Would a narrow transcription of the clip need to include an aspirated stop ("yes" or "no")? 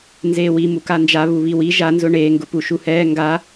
no